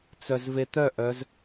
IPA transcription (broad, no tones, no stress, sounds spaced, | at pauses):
t͡s œ z v e t̪ œ ʔ œ z